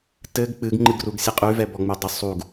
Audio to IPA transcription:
tɘɡ k͡pɨɡ ŋ͡ǃɨɡruɡsʲeqʼʉ vɛbɔŋ͡mʉdˤə sˤuɡ

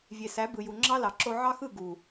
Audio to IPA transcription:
vʲe˨sæ˨˦ bɯ˨ju˨ŋ͡ǁɑ˦lɑ˨ ǁo˧ʕɑ˦xɯ˦˨ ɡu˨

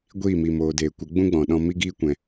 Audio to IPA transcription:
ɡʷiː˦˨mi˨ moː˨deː˨kʷə˨˦ ɡ͡bũ˦ɡ͡bɔ̃˨ ɗɔ̃˧mi˦ ɡiː˦kʷɛ̃˨

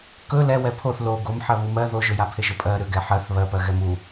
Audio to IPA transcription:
kɵ lɛ wɛpʰoθ lo ɡom ħɜβumɜ ðoʒɵjapʰeʒ ɵpʼɜ ɾʏ ɡɛħɜθ βɜpɜ ɣɛmu

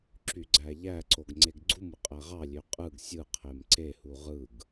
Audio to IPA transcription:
ǁyɡ͡ǀæʎæǀoɡ ŋ͡ǀeɡɡ͡ǀumɯ qʼæʁɑlʲø qʼɯɡ sʲɯ qʰemǀehu ʁɯɡ

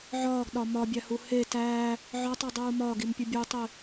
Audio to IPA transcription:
ʕɒːɡɗɒ mɒbʲæhu he tæː | ʕɒtˤudˤuː mɒɡimpʲu bʲutˤi

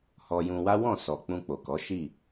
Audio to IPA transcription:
hɔ˧jũ˧wa˦ wɔ̃˦˨ sɔ˨k͡pũ˧ k͡po˨kɔ˨˦ʃi˦˨

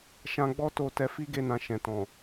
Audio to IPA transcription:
ʃã˧ɡ͡bɔ˦to˧ tɛ˧fi˦ɡe˧nã˨ ʃɛ̃˨tɔ̃˨

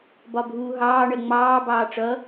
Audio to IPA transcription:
bɒbʱuːɦɑː ɳɜŋ͡mɑː bɑːʈ͡ʂʌ

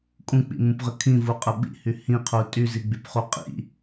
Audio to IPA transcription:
kʼũk͡pḭmũpʁə kʰĩvuqʼə ɓḭhy hĩqʰu tʼyziɡ͡bypχu qʼḭ

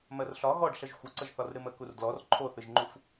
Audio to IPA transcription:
mɜrɬɒ ɣɔɖ ɬəʒxʷɨǀəʒ θɒrɾɨmə kurdlɔr ǃʰoθɨʒŋ͡ǃuf

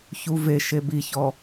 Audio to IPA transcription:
çuveʃe biçɔ

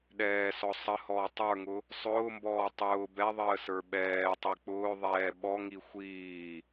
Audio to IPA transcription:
ɗɛːsɔ sˤəhɔː tˤə˞ŋʊ | sˤʊːmbɔː tˤʊː bɛðˤəːsə˞ ɓɛːtˤi k͡pʊːðˤɛː ɓɔŋi xʷiː

